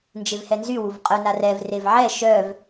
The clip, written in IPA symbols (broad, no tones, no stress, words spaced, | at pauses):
nd͡ʒevhɛnzy wuvqʼœna rɛvrev ʕɛ ʃœv